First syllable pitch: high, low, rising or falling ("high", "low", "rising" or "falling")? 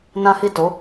high